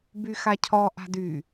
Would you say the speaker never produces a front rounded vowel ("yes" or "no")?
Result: no